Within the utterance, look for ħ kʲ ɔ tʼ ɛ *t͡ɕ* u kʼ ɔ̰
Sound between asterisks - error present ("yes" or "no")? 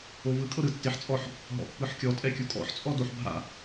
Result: yes